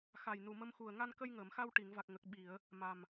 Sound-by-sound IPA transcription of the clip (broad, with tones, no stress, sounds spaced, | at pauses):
x a˨˩ j n u˨˩ m ə˧ m x u˨˩ ə̯ ŋ a˧ n k ə˧ j ŋ əː˨˩˨ m x a˧ w ʈ i˨˩˨ ŋ v a˨˩ k̚ ŋ ə˨˩ k̚ ɓ i˨˩˨ ə̯ | m a˨˩ m